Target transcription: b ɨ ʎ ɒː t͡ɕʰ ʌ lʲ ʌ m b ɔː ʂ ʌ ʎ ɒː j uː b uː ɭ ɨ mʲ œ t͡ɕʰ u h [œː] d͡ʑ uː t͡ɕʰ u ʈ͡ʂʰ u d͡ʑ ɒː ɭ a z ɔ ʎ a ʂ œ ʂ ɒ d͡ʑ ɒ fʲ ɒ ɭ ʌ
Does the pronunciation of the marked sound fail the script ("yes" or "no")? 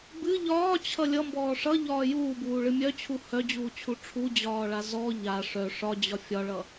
yes